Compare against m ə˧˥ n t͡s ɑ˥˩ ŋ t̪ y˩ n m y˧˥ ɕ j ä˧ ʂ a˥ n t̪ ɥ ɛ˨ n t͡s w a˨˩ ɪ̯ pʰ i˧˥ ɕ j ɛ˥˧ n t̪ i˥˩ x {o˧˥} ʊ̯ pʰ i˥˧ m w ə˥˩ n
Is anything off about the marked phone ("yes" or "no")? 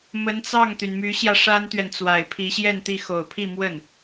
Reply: yes